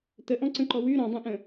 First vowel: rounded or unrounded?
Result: unrounded